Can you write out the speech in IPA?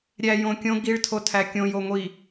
ɾʲ æ j õ kʲ õ ɡ i ɭ tʰ o tʰ æ kʲ õ j o ŋʷ i

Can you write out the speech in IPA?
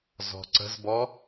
z ɔ̤ ǀ ə̤ z b ɔ

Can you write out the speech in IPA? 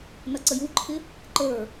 n ʌ ǀ ə j u ǃʰ ɪ | ǃ ə˞

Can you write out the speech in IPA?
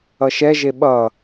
ʌ ʃ ɛ ʒ e ɓ ʌ

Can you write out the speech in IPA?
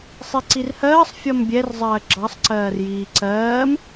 sˤ i ǀ i r h ɜː sˤ fʲ ɒ m bʲ ɛ r zˤ ɜː ɡ͡ǁ ɑ sˤ ǀ ɜː r j iː ǀ ɜː m

